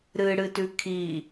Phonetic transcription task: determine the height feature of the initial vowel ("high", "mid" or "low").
high